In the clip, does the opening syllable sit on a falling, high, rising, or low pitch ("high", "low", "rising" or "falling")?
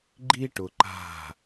high